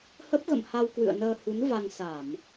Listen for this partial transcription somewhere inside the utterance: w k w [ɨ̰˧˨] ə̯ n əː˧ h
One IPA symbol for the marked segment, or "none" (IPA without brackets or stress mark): ɨ̰˧˨